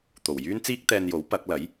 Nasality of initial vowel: oral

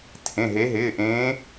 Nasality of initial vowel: nasal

